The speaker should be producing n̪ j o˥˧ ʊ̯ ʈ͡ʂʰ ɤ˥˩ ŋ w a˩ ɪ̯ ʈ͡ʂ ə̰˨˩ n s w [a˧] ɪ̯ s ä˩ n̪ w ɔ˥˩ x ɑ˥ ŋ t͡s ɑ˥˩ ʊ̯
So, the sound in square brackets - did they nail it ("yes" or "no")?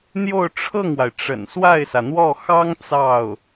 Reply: no